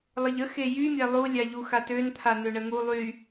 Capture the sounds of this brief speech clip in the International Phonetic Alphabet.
lˠ ə ʎ ə x e j y mʲ a lˠ u lʲ a ʎ u x a t ø n t̪ʰ a n̪ ø ɳ ə ŋ u lˠ y

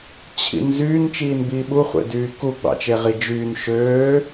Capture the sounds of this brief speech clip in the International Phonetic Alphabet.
t͡ɕʰ ḭ n z yː n t͡ʃ iː n b iː ɓ u χʷ ḛ d yː k u ɡ͡b ɑ̰ t͡ʃ e ʁ i d͡ʒ yː n ʃ øː

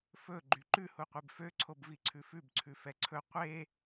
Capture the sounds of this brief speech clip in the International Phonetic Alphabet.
f ɵ ɡ͡ǃ y ǃ ʉ h u qʷ e b f ø ǀʰ o b v i ǀʰ ʉ f ʉ b ǀʰ ʉ f ɛ ǀʰ ɵ qʷ e

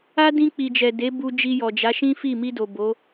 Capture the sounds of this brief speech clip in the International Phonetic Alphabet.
a˦ d ĩ˧ k͡p i˨ d͡ʒ ɛ˨ d e˨˦ b u˧ d͡ʒ i˧ j ɔ˨ d͡ʒ a˨˦ ʃ ĩ˦ f i˦˨ m i˧ d o˨ b o˨˦

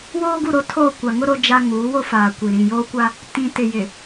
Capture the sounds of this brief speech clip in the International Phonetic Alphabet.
w oː˦ ɡ u˦˨ ɾ o˦ tʰ oː˦˨ kʷ a˨ ŋ ʊ˦ ɾ o˦ d͡ʒ a˦ ŋ uː˨˦ w o˦ f aː˨ kʷ i˨ ɾ ĩ˨ j oː˦ kʷ a˦ | t ĩ˨ t ɪ˨ j ɪ˨

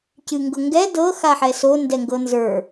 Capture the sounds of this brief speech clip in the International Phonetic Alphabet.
c ɨ ŋ ɡ ɤ ŋ ɡ ɛ d ɤ x a ħ ɛ s o n d ɛ ŋ ɡ ɤ n z ə˞

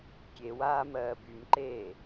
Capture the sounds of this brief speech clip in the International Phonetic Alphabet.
kʲ e w aː m ɜː b y m ǃ eː

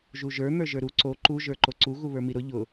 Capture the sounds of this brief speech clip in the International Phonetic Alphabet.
ʒ u ʒ ə˞ n̪ ə˞ ʒ ə˞ ɾ u ǀ o ǃ u ʒ ə˞ ǃ o ǀ u ɣ u β ə˞ m i ɾ ʊ ʎ ʊ

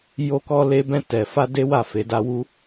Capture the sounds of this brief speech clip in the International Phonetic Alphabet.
j o˧ k ɔ˧ l e˧ b ɛ̃˧ t ɛ˨ f a˧ d e˦ w a˦˨ f e˨˦ d a˦ w u˦

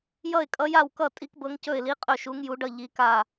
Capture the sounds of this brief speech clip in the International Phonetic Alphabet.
j ʌ˥˨ ɪ̯ kʼ ʌ˧˥ j a˥˨ w k ʌ˥˨ tʼ i˧˥ k b ɤ˧˥ ŋ c ɵ˥˨ ɪ̯ l i˧˥ qʼ ɵ˥˨ ʃ u˧˥ ŋ j u˧˥ ɖ ʌ˥˨ ʎ i˧˥ k a˥˨

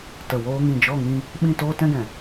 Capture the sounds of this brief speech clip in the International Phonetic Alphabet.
t ə˨ w oː˧ ŋ ĩ˨ d͡ʒ ɔ˦˨ ŋ ĩ˧ | ɓ ĩ˦˨ t oː˦ t ɛ̃˦ ɡ ɛ̃˨

